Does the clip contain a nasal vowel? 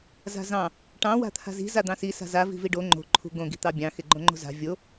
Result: yes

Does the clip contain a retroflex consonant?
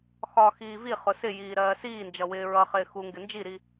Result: no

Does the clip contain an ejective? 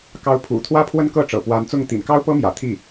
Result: no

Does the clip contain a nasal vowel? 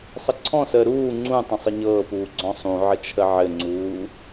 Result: yes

